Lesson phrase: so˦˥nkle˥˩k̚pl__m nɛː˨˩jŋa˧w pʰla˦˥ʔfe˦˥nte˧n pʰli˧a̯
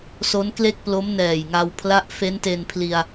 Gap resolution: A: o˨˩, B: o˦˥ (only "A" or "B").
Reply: B